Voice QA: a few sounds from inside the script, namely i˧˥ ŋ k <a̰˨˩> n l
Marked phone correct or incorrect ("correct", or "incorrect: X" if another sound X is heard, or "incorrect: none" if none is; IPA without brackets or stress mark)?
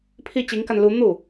incorrect: a˧